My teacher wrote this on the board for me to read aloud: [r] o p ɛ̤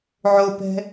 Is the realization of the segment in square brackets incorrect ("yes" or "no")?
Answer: yes